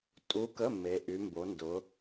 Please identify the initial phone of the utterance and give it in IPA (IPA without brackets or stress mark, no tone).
tʼ